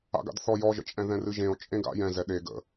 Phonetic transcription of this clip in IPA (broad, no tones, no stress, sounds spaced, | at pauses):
a̰ ɡ a̰ d θ ɔ j ɔ ʒ ə̰ t͡ʃʼ ɛ̃ ð ɛ̃ r ɨ ʒ ẽ o̯ t͡ʃʼ ẽ ɡ a̰ j ɛ̃ z ɛ ɗ e ɡ ə̰